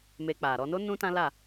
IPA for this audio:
m e˧ k͡p a˨ ɾ ɔ˧ n o˦ n ũ˦ t ã˦ l a˦˨

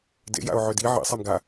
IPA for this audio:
d ḛ j a̰ ʊ̯ ʕ ʏ d i ʕ ḭ sˤ ɛ m ɡ a

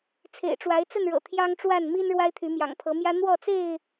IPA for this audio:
t͡sʰ ḛ˨˩ ɪ̯ ʈ͡ʂ w a˨˦ ɪ̯ t͡s ə˥˨ n ɻ ɤ̰˨˩ t̪ʰ j ɑ˦ ŋ ʈ͡ʂ w a˥˨ n m i˦ n ɻ w a˦ ɪ̯ t̪ʰ y˨˦ m j ɑ̰˨˩ ŋ pʰ ɤ˨˦ m j ä˦ n̪ w ɔ˥˨ t͡s e˥˨ ɪ̯

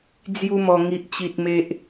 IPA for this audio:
d͡z j u˦ m ɔ˧ ŋ i˦ ʔ t͡ɕ i˦ t̚ m e˦ ʔ

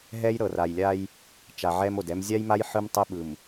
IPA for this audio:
ɦ ɛ˦ j ɾ ɤ˨ r a˨ j lʲ a˦ j | t͡ʃ a˨ ʕ ɛ˦ m o˨ d ɛ˦ m zʲ a˦ j m a˦ j ħ ɯ˦ m tˤ ɛ˦ ɓ ɯ˨ m

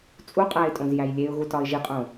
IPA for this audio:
t͡sʼ u qʼ æ ɪ̯ tʼ õ z j æ j lʲ e ʊ̯ ɣ u t ɒ ɪ̯ ʒ i qʼ õ

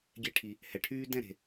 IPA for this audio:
ɡʲ eː˧ ʈʰ i˨ | h ɛ˨ ʈʰ yː˦ d ɛ̃˦˨ ɾ e̤˨

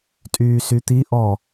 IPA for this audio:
tʼ yː s y t̪ i ʔ ɔ

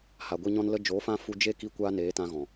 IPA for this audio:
h a˨ ɡʷ e˧ ɲ ɔ̃˧ n l ə˦ d͡ʒ o˨˦ f ã˧ f u˧ d͡ʒ e˦ k i˧ kʷ aː˧ n eː˨˦ t ã˧ ɣ ɔ̃˨

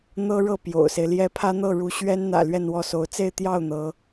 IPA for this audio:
n̪ ɤ˥ ɻ ɤ˥˩ p j o̰˨˩ ʊ̯ s e˦ ɪ̯ l j ɛ˥ pʰ ä˥ n̪ ɤ˥˩ ɻ u˧˥ ɕ ɥ ɛ˥ n n̪ ä̰˨˩ l ɥ ɛ˥˧ n w ɔ˥˩ s o˧˥ ʊ̯ t͡s e˥˧ ɪ̯ t̪ j ɑ˥˩ ʊ̯ n̪ ɤ˧˥

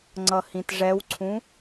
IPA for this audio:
ŋ͡ǀ ʌ h ĩ t ʐ ɛ w ǀʰ ũ

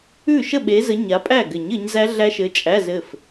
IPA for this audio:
ʉ˥˩ ʃ ə˥˩ ɓ e˨˦ z ə˨˦ ɲ a˨˦ pʼ æ˥˩ ɡ ɘ˨˩˦ ɲ ɘ˨˦ ɲ z æ˦˥ ɮ æ˦˥ ʃ ɘ˨˦ t͡ʃʼ æ˧˥˧ z ɘ˥˩ f

